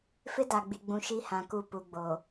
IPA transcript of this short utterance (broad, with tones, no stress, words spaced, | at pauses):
fɪ˦da˨ɡ͡bi˨ɡ͡bũ˨ ʃi˦hã˨ku˦˨ pu˨ɡ͡bo˨